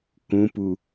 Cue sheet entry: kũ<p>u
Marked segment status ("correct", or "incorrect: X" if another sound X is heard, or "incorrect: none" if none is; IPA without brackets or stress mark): correct